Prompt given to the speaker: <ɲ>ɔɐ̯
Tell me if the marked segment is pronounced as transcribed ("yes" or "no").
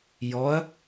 no